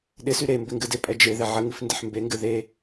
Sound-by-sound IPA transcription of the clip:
ɗ ɪ s y ɾ e m b ɪ ŋ ɡ ɨ d ɪ pʼ ɛ d͡ʒ e ð ɪ ʕ ə ŋ ɨ f n d ɪ ħ m b e ŋ ɡ ɨ ð e

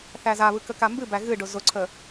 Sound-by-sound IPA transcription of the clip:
θ æ z a β ɯ k ə k a m b ɨ b æ ɣ ɨ ɖ ʊ z ʊ ǀʰ ə

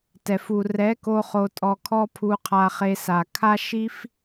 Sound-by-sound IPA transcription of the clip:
t ɛ˨ f u˨ r ɛ˨˦ k o˧ χ o˧ tʼ ɔ˧ kʰ ɔ˦ pʰ u˧ qʰ a˧ χ e˧ s a˨ kʰ a˦ ʃ i˦ f

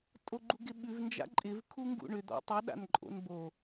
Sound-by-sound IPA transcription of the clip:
tʼ o ɡ͡ǃ u ɡ ɪ ɓ ʉ v n d͡ʒ a̰ ǃʼ ɪ v kʰ u ŋ ɡ ṵ ɳ ʏ d̪ ɔ̰ tˤ ɵ ɗ a̰ n ǃʼ o̰ n b o

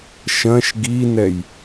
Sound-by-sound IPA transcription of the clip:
ʃ ɐ̃ ʃ ɡ i n ɛ j

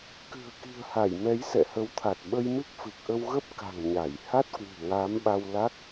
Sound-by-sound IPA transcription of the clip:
k ɨ̤˨˩ ə̯ k i̤˨˩ ə̯ h a˧˩ j m ɛ˨˦ j s ɛ̰˧˨ h ə˨˦ w t̪ʰ a˨˩ t̚ ɓ ə˧ j m ɨ˦˥ k̚ f ɨ˨˩ k̚ ʔ ə˧ w ɣ ə˦˥ p̚ k a̤˨˩ ŋ ɲ a˧˩ j h a˦˥ t̚ k w ṳ˨˩ ŋ aː˨˦ m ɓ a˧ w l a˦˥ k̚

